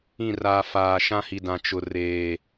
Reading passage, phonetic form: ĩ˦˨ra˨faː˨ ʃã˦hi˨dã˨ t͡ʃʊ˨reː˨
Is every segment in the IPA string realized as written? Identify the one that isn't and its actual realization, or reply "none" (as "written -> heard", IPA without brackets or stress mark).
none